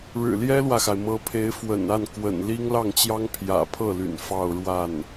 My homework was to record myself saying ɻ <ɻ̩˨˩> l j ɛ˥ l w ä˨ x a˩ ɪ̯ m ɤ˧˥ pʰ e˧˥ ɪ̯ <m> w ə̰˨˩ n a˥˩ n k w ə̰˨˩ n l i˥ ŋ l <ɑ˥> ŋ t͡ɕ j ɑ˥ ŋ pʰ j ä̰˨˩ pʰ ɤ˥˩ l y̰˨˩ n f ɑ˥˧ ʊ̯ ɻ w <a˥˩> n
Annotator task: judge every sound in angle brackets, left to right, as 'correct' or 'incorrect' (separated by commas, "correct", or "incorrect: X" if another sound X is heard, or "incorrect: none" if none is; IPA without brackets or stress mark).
correct, incorrect: f, incorrect: ɑ˥˩, correct